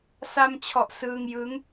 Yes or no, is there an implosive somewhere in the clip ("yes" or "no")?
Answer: no